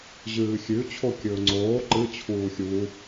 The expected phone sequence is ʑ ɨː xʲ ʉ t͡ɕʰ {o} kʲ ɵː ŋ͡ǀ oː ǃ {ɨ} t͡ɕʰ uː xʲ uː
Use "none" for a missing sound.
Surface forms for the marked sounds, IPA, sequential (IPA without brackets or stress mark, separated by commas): o, ɨ